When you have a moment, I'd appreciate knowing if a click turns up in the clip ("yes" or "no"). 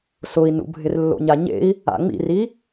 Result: no